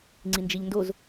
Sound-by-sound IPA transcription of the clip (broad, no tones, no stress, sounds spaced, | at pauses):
ŋ͡ǀ i n d͡ʒ i ʎ n d o z